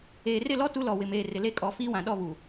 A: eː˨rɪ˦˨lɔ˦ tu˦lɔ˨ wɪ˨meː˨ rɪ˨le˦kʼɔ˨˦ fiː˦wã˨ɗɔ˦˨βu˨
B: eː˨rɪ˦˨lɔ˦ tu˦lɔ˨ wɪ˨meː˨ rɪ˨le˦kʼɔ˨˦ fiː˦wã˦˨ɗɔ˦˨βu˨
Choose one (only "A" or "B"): A